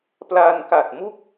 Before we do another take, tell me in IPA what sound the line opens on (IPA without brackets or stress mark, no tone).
p